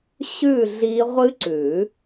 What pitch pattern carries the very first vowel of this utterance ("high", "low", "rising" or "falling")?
falling